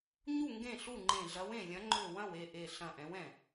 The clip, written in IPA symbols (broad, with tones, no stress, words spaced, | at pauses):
ɲu˥˩ ŋɡẽ˥˩ɬu˥˩ŋ͡ǃẽ˧˩ ɮɐ˨˦wẽ˧˩ lʲɐ̃˨˦ŋ͡ǃø˧˩ wɐ̃˥˩we˥˩ʔe˧˩ ɬɐ̃˧˩ʔɛ̃˨˦wɛ̃˧˩